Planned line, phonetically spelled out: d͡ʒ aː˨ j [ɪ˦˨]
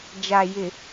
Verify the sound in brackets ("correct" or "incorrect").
incorrect